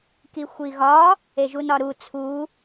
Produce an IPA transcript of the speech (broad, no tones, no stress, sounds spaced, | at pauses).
k i xʷ i ɣ ɒ | e ʒ u n ɒ ɾ u t͡sʰ u